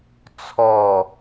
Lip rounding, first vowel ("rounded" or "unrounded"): rounded